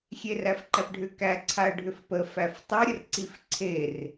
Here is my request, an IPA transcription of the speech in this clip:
xʲeræfǃæpɖʱʏ kæ ǀʰaə̯ɖʱʏfpə fæftˤɤ ɾʲərǀifǀʰer

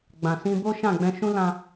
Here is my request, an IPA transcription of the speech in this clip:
ɡ͡bã˨sĩ˧bo˦ ʃã˦˨ɡ͡bɛ̃˧ ʃũ˦lã˧

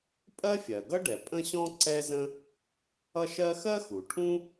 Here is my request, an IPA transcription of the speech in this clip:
pʼɜ˥fʲɜ˩ɡʌ˥ɖɛ˩ pʼə̃˥ɕɔ̃˥ ǀɛ˥zə̃˥ | ʌ˥ʃɜ˥ xɜ˥xu˩ʈʰũ˥

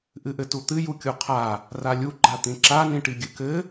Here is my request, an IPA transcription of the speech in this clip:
ʔɨʔɘtut̪ɨ jukʲuqʰa | ralʲu ɡ͡ǃat̪ĩǁa nĩʈiɡʲɨkɘ

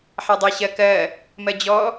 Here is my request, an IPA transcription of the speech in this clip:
ħadˤeɕɜkɜ | mɜd͡ʑɔ

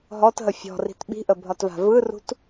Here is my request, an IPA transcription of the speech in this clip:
ɦɔtɦə fʲɔ̤ri̤t ɓi̤ʔəbʱɒtva̤ vɯrṳt

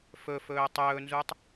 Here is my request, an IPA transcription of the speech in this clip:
fɵfɵː tˤɵːnzutˤ

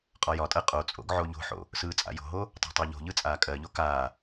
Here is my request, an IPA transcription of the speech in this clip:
qʼɒjɒtʼɜ qʼot͡sʼo̰ɡ ʕoʎo̤ħo̰ | sɯːt͡sʼa̰jo̤ɦo | tˤa̤tˤɜʎo̤ʎɯ t͡sʼaːkʼɜʎo kaː

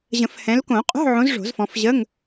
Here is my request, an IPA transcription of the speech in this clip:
ʑə̃˨˩˦fhɛ̃˨˦l kõ˨˩˦qʼo̤˧˥˧ʕõ˨˦z ʐo̤˨˩˦zfɔ̃˨˦fʑə˧˥˧ŋ

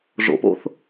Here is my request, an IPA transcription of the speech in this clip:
ʐo̰po̰θ

